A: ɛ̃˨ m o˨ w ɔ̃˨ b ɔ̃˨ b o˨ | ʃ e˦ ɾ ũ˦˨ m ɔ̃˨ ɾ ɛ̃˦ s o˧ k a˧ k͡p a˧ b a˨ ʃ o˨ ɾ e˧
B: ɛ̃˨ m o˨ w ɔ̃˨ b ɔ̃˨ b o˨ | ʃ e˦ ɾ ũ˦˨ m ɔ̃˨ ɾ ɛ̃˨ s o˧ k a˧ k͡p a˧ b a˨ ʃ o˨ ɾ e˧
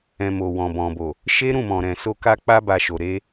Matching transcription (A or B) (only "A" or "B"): B